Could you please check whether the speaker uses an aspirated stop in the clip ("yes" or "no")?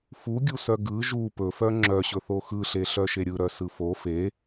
no